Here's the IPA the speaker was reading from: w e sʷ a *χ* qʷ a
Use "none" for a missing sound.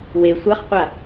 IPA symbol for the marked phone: χ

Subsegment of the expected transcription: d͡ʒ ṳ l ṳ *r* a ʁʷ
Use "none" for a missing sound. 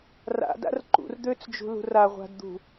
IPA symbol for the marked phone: r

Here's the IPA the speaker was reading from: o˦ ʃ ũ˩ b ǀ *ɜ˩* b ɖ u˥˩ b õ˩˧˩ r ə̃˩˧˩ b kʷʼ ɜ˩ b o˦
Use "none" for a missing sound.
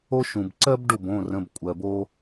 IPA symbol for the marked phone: ɜ˦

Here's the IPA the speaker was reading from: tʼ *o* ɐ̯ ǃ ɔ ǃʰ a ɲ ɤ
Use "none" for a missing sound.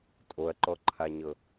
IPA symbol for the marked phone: o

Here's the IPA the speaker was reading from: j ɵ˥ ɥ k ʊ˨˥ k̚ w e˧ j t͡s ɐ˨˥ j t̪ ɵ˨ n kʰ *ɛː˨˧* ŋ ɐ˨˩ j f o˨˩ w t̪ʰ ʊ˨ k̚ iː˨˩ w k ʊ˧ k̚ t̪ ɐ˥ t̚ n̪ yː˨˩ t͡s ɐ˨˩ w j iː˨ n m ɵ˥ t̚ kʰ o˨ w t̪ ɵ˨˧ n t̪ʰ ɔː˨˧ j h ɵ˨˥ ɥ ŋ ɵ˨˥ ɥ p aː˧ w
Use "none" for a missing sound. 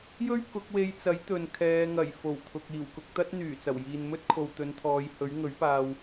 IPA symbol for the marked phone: ɛː˨˧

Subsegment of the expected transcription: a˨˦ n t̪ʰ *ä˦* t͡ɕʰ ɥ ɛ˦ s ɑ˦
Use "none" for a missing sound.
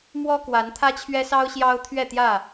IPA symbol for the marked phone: ä˦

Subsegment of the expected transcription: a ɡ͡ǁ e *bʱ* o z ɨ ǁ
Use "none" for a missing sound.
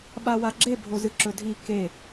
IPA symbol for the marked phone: bʱ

